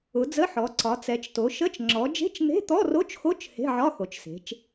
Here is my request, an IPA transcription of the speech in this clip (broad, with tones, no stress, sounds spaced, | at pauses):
ʊ˩˧ d͡z ə˧˥˧ ħ ɔ˩˧ ǀ ɒ˩˧ t͡s ɛ˩˧ t͡ʃ t o˩˧ ʃ ə˧˥˧ t͡ʃ ŋ͡ǁ ɔ˩˧ d͡ʒ e̤˧˥˧ t͡ʃ n̪ e̤˧˥˧ t̪ ɔ˧˥˧ r o˧˥˧ t͡ʃ x o˧˥˧ t͡ʃ h e̤˧˥˧ ʕ ɒ˧˥˧ x o˩˧ t͡ʃ s e̤˩˧ t͡ʃ